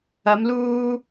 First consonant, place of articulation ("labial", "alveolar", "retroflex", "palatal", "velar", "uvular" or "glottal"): labial